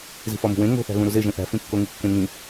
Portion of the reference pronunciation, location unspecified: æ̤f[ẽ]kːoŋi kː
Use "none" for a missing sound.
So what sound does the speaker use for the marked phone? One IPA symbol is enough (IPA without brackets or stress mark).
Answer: ĩ